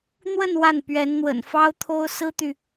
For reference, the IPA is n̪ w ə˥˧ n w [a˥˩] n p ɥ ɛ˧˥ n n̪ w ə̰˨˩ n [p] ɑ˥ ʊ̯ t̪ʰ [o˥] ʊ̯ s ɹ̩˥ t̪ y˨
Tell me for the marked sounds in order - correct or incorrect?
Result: correct, incorrect: f, correct

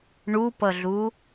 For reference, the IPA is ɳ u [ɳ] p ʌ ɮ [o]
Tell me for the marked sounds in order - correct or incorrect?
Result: incorrect: none, incorrect: u

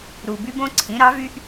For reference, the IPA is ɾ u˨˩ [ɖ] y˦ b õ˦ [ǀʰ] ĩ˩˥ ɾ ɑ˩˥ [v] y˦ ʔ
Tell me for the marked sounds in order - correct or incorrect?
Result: incorrect: b, correct, correct

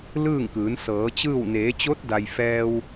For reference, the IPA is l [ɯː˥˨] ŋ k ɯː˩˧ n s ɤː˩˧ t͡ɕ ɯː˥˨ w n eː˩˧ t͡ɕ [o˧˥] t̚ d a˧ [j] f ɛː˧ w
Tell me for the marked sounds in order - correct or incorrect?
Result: correct, correct, correct

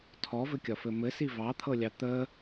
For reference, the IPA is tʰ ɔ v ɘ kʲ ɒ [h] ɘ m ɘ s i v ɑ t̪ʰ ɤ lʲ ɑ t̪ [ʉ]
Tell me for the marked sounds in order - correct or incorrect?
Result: incorrect: f, incorrect: ə

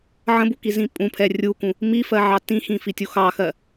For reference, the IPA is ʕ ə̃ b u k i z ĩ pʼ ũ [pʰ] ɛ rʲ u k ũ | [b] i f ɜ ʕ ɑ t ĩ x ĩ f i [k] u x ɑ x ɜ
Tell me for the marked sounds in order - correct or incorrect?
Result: correct, incorrect: m, incorrect: tʲ

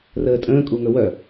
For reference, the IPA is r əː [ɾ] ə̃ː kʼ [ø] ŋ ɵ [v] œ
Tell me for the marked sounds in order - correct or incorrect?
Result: incorrect: tʼ, incorrect: u, incorrect: w

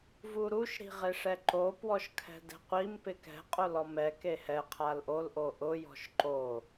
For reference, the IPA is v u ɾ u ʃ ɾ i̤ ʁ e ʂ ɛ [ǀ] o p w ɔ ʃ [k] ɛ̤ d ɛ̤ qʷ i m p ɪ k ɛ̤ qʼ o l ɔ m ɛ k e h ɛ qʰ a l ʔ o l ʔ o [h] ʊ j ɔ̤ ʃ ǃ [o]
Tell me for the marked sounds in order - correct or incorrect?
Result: incorrect: ǃ, incorrect: kʰ, incorrect: ʔ, correct

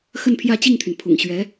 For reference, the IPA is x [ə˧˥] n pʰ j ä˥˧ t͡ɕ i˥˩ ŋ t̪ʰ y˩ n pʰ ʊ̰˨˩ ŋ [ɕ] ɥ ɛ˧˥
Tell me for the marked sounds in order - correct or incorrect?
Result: incorrect: ə˥˧, correct

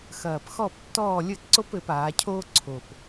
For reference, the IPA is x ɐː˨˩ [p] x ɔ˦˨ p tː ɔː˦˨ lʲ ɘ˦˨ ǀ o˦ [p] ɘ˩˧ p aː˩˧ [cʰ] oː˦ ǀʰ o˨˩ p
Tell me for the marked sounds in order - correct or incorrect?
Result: correct, correct, correct

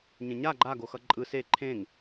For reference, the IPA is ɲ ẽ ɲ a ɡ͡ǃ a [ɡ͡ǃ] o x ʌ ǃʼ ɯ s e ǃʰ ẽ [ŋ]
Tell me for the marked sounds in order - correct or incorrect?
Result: incorrect: ɡ, correct

